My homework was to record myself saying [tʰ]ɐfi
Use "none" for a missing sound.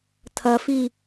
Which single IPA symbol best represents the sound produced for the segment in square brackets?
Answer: tʰ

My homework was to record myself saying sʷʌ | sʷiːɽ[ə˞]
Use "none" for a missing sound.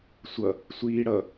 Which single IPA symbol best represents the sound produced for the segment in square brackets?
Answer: ʌ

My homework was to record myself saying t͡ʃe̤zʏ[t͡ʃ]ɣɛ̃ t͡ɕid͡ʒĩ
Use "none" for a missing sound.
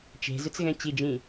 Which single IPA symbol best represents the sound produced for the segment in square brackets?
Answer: t͡s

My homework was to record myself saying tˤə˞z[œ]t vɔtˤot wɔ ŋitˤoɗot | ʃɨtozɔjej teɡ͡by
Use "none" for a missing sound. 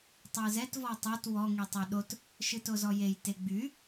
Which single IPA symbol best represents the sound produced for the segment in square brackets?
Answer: ɛ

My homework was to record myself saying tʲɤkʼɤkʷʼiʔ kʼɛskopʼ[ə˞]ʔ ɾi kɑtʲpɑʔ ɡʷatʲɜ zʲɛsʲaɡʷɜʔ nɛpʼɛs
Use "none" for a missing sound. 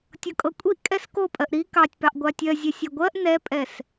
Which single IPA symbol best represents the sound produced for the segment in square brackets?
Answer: ɜ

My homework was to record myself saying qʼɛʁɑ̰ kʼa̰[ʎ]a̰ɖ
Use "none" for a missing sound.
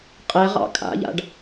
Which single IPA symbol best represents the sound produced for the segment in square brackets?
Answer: ʎ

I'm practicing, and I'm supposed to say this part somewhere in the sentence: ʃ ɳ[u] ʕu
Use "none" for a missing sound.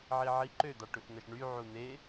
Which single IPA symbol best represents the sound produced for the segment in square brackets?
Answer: y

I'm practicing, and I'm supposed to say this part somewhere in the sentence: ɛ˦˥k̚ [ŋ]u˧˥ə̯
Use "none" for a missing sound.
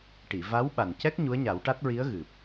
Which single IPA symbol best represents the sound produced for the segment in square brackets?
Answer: ɲ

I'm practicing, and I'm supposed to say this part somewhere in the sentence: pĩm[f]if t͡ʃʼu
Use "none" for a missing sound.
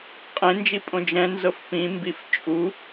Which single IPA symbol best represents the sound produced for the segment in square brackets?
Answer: b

